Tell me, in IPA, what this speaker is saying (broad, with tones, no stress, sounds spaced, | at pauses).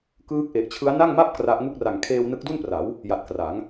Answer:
k ɯː˦˥ k̚ ʔ e˨˩ ʔ t͡ɕʰ ɯ˦˥ a̯ n a˥˩ ŋ m a˥˩ p̚ k r a˦˥ ʔ ŋ u˥˩ k̚ r a˨˩ ŋ kʰ eː˧ w n ɯ˦˥ k̚ d u˥˩ n p r a˩˦ w | j a˨˩ t̚ k r a˩˦ ŋ